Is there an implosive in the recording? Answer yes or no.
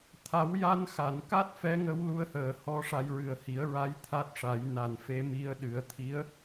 yes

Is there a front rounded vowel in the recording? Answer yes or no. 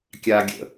no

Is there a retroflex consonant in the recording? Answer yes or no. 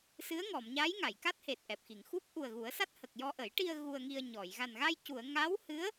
yes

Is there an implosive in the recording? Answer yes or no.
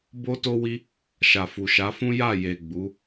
no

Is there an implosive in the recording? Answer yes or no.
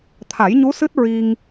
no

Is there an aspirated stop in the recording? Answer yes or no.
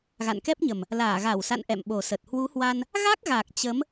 no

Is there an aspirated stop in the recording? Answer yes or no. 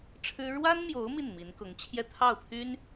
yes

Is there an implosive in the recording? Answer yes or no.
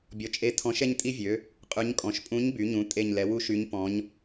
no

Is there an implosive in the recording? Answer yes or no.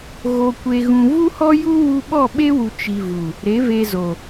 yes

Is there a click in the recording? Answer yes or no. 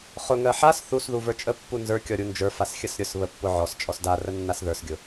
no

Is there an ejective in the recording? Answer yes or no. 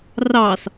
no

